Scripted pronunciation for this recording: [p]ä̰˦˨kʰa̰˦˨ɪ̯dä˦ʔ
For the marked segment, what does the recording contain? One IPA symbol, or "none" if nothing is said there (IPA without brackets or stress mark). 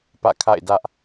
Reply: p